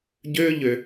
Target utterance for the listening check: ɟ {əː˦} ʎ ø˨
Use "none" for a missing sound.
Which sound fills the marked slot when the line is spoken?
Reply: øː˦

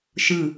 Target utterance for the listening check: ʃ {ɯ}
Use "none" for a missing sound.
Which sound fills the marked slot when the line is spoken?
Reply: ɯ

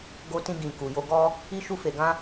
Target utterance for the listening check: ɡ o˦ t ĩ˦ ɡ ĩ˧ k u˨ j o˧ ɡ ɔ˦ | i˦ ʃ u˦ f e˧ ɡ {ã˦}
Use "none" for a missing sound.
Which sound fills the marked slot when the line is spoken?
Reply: ã˦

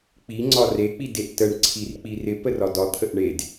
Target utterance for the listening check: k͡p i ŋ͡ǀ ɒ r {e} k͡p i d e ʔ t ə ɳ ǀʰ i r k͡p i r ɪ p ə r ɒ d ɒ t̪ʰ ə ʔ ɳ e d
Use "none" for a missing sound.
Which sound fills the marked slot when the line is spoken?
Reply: e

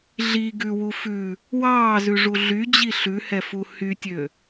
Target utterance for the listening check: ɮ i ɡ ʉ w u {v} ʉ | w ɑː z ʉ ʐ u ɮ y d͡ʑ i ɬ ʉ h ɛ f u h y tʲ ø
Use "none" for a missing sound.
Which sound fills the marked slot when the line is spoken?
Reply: f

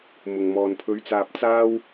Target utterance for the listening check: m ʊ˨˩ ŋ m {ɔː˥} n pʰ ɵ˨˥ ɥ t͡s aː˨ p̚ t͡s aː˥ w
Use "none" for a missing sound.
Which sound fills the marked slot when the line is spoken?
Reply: ɔː˨˩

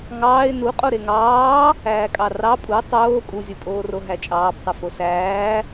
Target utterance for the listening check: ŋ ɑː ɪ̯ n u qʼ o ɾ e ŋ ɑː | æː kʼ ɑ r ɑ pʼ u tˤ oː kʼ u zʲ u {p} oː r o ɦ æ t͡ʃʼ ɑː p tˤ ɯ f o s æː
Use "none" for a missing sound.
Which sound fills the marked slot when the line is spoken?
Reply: pʼ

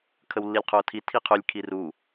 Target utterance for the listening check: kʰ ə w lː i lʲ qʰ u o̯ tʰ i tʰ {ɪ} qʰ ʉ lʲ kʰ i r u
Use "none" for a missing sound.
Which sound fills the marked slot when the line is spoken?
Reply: i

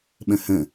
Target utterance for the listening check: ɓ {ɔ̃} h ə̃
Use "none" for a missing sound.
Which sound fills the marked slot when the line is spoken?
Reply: ə̃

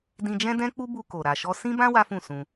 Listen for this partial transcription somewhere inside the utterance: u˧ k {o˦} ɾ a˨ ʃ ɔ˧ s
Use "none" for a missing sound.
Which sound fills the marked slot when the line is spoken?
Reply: o˨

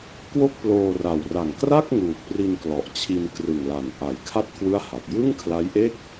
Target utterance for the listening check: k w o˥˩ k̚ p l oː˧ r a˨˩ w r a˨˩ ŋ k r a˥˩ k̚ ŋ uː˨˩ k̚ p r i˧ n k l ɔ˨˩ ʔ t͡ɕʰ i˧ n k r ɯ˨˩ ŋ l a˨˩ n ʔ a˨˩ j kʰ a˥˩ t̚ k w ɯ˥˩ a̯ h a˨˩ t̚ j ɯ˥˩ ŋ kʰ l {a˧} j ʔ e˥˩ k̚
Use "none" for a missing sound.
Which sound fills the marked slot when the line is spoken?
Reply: a˦˥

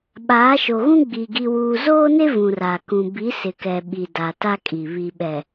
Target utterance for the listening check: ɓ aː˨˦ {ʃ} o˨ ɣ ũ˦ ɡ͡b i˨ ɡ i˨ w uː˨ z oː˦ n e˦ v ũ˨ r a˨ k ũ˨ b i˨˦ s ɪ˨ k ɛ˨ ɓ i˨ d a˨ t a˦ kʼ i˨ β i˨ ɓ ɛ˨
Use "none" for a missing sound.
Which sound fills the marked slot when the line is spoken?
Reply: ʃ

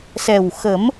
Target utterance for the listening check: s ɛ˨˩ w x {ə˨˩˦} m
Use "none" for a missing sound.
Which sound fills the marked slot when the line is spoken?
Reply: ə˨˩˦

